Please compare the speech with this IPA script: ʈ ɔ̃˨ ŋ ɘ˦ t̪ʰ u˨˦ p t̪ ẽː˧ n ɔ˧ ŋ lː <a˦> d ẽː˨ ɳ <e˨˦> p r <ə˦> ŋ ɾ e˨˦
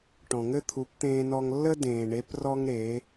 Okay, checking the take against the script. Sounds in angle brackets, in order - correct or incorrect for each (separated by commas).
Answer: incorrect, correct, incorrect